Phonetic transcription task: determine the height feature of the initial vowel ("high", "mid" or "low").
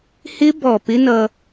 high